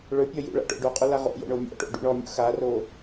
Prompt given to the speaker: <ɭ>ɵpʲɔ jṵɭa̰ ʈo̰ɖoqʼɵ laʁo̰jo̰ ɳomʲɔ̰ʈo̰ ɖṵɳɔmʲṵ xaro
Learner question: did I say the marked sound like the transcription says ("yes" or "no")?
yes